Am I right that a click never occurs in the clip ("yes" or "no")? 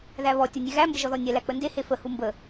yes